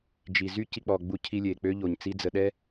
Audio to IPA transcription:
d͡ʒ i˨ z y˦ c i˧ k͡p ɔ˨ ɡ͡b u˧ cʰ i˧ lʲ e˨ k͡p ø˦ ʎ o˨ ɲ t͡s i˦ d͡z ə˧ ɗ ɛ˦

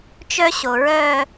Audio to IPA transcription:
t͡ʃ œ˥ ɕ o˩ ɹ œ˥˧

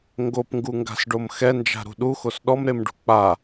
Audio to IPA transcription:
ŋ ɡ o p ŋ ɡ u ŋ ɡ a̤ s ɖ o m x ɛ n d͡ʒ a̤ ɾ ṳ ɗ u x o s ɗ ɔ m ɾ e m ɖ ṳ k͡p a

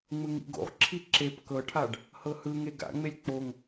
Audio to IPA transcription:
ŋ͡m ɯ ŋ ḭ ɡ o̰ ʁ ǁʰ i ǁ e p k ɤ ʈʰ a ɖ | h ɤ h ɯ ŋ e ɡ a̰ ŋ͡m e lʲ k͡p o ŋ

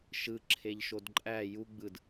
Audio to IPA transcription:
ʃ ɯ ǁʰ e ʎ ʃ o d ǃʼ æ j u ɡ͡b ɯ d

